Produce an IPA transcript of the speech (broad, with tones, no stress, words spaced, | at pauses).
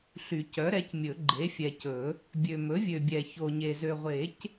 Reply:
ɬy˨˩˦cœ˩˥ɾɛ˩˥cmʲɵ˨˩˦ ɡ͡ǃe˩˥fʲɛ˨cɵ˨˩˦ | bʲø˨ mɵ˩˥ vʲø˨bʲɛ˨ ço˨ɲe˨ zø˨ʁʷe˨˩˦c